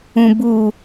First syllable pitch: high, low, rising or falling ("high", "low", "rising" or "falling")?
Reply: low